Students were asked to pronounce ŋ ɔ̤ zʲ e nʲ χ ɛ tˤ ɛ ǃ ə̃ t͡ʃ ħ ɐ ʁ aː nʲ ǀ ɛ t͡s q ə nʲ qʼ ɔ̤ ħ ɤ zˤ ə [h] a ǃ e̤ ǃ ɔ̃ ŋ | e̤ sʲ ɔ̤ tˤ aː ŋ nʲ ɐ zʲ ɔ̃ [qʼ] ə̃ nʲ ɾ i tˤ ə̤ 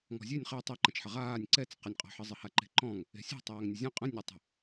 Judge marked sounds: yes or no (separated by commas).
yes, yes